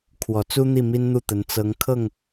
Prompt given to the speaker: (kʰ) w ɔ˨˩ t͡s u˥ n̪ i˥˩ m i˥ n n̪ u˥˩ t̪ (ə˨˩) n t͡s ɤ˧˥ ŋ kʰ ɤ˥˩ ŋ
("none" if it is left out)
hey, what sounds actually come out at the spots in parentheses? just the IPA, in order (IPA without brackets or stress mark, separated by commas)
kʰ, ə˧˥